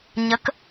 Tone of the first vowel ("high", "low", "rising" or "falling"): rising